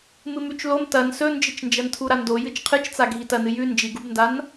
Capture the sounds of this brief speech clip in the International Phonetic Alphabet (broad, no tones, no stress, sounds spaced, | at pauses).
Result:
m ɨ m ʉ t͡ʃ l o m t ɐ n s ɵ n d͡ʒ ɨ t͡ʃ n d͡ʒ ɐ n tʰ u ɾ a n d o j ɨ t͡ʃ qʰ ɨ t͡ʃ t͡s a ɡʱ i t ɐ n ɨ j ʉ n d͡ʒ i ɡ u b n d a n